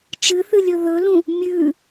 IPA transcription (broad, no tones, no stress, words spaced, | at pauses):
t͡ʃɨθɨ lʲɵðɵlũ | mʲʉ